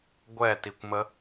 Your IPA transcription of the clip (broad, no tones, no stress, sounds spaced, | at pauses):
ɡʷ ɛ t i kʷ m ə